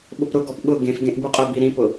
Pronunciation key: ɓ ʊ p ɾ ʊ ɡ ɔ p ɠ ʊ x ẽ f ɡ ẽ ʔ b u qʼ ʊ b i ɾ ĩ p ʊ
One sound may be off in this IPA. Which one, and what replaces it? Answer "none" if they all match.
x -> ɡ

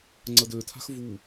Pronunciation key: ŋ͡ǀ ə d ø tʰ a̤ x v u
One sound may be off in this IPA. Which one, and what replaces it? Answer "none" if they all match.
none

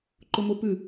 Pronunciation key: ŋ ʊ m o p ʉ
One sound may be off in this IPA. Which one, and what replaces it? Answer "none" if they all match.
ŋ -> ǃ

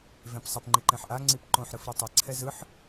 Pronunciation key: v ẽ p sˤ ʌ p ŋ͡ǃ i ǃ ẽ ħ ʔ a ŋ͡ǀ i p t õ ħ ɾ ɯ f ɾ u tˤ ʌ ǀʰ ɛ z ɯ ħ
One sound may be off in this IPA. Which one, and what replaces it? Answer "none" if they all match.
t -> ǃ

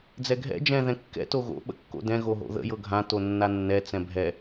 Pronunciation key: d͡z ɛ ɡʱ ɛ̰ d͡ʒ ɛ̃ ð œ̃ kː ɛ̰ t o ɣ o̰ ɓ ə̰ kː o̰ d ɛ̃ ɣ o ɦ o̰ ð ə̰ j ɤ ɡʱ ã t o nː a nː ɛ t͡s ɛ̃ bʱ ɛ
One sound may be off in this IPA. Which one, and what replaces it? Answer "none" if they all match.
œ̃ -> ɛ̃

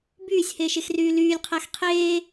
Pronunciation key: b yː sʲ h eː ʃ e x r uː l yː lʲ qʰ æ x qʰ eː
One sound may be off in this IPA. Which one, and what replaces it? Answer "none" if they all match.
uː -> yː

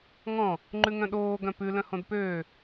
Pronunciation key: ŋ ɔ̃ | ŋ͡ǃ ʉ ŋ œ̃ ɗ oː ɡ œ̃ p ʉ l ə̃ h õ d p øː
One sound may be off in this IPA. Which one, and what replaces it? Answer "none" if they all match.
ə̃ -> œ̃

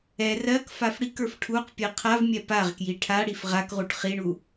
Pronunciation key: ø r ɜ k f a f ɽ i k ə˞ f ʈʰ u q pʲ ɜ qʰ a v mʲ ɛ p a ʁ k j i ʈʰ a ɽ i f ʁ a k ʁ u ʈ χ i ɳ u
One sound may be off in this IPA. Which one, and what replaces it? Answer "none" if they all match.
ø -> ɛ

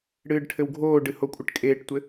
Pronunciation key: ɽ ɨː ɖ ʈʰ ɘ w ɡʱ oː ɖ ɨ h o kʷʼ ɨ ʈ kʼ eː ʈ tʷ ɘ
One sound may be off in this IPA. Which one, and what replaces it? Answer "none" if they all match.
none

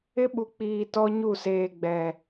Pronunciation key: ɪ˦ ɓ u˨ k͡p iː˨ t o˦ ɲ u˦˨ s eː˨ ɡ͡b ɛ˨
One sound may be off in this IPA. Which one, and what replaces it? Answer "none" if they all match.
o˦ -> ɔ˦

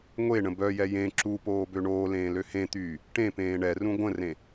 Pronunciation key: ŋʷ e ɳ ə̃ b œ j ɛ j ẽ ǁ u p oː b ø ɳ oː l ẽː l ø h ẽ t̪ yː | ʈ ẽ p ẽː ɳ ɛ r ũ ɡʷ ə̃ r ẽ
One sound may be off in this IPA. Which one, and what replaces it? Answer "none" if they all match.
none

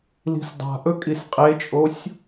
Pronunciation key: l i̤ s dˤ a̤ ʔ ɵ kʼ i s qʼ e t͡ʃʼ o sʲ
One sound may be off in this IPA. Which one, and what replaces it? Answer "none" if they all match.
none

